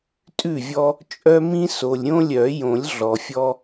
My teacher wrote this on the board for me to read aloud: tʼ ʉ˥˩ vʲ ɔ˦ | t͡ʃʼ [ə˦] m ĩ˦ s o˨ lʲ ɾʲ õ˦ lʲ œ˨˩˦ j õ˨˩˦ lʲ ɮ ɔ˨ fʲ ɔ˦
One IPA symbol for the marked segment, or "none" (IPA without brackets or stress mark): œ˦